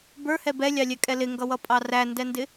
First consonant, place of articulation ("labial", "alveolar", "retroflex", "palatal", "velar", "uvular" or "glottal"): labial